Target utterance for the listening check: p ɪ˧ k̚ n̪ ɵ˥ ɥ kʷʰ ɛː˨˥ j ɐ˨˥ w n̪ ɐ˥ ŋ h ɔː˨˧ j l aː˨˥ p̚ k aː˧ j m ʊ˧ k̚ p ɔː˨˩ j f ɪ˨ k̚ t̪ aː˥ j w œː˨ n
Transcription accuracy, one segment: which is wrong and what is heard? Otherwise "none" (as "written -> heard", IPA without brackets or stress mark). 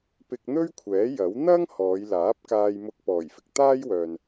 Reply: none